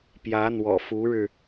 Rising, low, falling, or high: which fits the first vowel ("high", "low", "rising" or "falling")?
rising